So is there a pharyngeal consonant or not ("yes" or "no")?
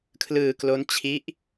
no